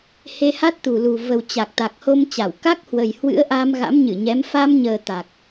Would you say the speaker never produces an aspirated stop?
yes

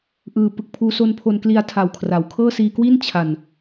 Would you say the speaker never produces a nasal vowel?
yes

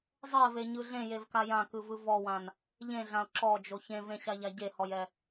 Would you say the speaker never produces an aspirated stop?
yes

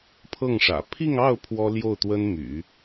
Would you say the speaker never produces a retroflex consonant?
no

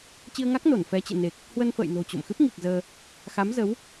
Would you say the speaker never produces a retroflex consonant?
yes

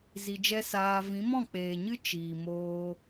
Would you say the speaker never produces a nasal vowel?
no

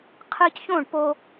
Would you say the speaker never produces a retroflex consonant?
no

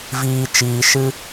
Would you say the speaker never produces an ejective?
yes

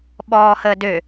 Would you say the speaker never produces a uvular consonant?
yes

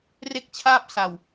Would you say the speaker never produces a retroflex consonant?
yes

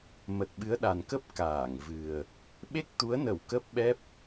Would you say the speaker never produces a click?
yes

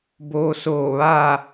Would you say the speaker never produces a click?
yes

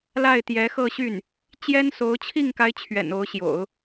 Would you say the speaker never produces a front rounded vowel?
no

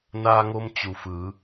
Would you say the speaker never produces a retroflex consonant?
yes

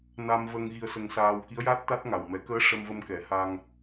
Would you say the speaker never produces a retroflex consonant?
no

